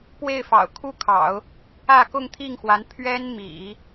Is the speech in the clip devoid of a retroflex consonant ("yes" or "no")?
yes